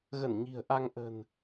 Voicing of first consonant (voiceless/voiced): voiced